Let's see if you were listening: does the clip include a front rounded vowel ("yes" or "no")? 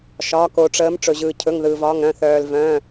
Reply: yes